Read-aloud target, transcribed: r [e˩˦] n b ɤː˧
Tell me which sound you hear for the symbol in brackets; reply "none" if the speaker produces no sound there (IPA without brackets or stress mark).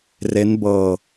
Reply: e˦˥